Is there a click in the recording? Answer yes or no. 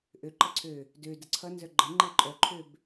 yes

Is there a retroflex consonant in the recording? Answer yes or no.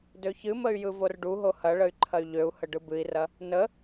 yes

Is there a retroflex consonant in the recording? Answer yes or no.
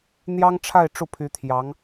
yes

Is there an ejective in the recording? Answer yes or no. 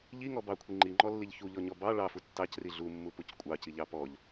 yes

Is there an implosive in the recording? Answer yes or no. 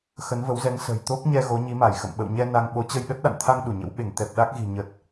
yes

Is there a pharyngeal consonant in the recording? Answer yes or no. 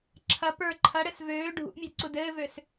no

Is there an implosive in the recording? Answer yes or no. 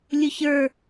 no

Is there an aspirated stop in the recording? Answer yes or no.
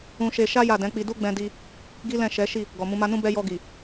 no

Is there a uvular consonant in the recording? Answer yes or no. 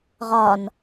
yes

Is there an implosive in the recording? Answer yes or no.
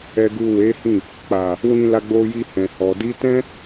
no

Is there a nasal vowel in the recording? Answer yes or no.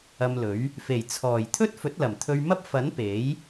no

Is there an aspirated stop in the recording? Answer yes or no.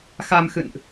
no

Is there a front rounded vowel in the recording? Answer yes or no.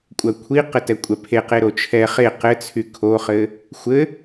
yes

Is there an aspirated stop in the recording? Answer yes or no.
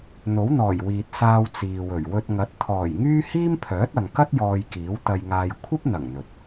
yes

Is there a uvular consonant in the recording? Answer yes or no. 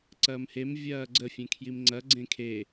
no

